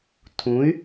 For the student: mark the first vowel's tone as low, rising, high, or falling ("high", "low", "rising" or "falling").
rising